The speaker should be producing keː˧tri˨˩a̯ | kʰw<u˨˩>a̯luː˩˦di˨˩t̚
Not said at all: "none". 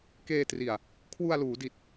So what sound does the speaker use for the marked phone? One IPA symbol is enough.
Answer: u˧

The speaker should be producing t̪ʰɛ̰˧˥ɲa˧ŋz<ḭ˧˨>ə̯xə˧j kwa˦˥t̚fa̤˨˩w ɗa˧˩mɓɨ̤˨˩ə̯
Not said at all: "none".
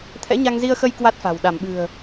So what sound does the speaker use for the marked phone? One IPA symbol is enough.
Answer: i˧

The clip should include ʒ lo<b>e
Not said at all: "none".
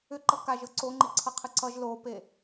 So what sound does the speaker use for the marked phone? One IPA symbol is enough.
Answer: p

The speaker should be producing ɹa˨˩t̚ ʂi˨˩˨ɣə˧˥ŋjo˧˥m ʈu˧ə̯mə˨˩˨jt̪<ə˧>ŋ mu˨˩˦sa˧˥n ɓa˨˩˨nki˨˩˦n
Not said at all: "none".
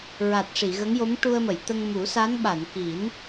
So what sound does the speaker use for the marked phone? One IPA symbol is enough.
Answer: ə˧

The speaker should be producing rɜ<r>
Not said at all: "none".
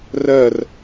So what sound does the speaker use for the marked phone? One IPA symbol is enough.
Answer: r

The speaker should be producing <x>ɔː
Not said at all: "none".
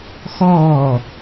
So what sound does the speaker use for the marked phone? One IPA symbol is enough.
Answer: x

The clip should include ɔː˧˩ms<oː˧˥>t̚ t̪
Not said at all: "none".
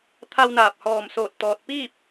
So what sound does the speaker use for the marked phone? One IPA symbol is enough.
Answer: oː˧˩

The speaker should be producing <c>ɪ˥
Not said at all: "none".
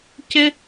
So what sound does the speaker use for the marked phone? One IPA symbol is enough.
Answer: c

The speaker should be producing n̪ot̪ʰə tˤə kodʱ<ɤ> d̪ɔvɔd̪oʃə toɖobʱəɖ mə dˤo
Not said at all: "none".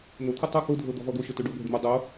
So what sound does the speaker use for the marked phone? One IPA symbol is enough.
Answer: ɤ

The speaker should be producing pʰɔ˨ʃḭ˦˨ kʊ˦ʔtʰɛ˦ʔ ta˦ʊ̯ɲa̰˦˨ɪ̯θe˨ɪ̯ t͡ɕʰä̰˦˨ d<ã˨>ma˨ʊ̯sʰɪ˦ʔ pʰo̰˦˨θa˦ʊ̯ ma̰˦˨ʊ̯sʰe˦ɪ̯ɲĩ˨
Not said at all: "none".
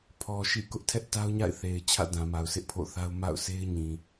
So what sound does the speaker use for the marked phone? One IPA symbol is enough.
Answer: ã˨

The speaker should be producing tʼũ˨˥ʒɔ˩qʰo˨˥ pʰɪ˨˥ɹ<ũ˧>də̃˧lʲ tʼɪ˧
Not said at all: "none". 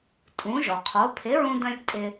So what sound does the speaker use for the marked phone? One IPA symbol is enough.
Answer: ũ˧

